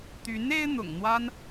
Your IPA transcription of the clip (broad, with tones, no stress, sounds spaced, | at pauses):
t̪ y˧˥ n e˥ ɪ̯ n̪ ʊ̰˨˩ ŋ n̪ w a˥ n